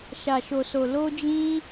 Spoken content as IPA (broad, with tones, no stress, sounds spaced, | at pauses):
ʃ a˨ ʃ o˨ s o˨ l o˧ d͡ʒ ĩ˧